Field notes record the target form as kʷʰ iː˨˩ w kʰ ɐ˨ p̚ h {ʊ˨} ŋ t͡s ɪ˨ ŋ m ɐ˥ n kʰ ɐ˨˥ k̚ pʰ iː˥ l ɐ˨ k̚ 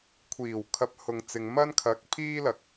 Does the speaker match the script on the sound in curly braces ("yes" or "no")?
yes